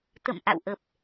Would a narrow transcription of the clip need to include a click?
no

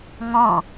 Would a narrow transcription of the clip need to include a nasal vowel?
yes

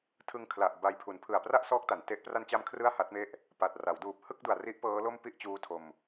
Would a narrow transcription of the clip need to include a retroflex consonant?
no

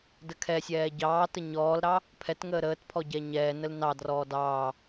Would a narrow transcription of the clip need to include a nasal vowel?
no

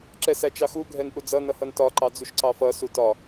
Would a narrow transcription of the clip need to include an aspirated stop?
no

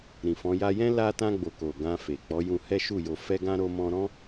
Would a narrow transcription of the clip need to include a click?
no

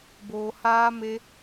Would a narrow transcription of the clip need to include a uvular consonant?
no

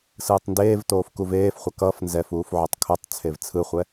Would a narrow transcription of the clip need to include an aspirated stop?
yes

